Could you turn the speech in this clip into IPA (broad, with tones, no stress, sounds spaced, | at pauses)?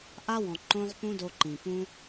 ʔ a˦ w ɔ̃˨ ǃ õ˦ ʁ p ũ˦ d o˧ ǃ ĩ˨ p ũ˦